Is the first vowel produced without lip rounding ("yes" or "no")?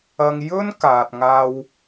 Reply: yes